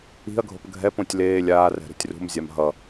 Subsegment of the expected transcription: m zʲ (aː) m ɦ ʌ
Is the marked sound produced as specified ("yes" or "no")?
no